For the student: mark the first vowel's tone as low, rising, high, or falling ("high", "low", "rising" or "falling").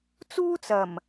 high